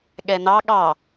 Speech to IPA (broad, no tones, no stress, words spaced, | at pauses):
ɠɛnɑ ɠɑ